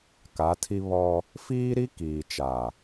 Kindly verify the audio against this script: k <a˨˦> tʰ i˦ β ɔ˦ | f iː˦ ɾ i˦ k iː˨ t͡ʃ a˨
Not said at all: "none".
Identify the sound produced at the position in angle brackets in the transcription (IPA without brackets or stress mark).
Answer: a˨˦